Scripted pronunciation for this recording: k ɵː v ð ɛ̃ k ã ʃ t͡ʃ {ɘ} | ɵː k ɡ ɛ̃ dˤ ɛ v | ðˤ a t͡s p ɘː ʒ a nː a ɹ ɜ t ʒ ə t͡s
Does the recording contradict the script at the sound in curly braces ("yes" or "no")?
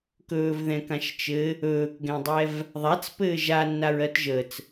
no